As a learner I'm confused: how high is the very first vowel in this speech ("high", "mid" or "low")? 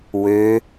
mid